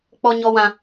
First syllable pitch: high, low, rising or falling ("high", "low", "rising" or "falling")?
high